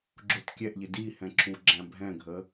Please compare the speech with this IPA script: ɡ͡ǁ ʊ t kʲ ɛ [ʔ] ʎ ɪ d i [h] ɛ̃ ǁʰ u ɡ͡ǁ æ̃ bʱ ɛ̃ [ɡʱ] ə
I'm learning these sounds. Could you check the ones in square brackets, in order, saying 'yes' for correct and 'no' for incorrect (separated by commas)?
yes, yes, yes